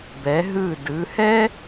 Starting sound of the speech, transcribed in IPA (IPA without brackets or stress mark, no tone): b